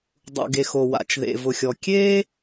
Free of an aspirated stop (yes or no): yes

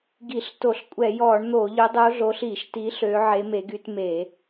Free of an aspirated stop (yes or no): yes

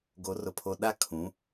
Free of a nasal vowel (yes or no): no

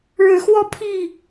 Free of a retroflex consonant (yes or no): no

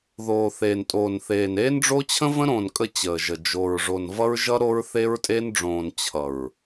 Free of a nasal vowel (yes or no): no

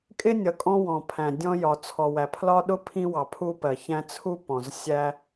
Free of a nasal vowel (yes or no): no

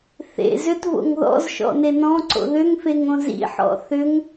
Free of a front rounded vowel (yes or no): no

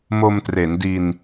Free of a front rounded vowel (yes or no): yes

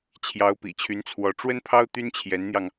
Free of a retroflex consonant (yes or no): no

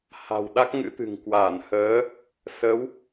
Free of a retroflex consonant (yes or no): yes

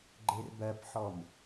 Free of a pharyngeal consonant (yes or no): no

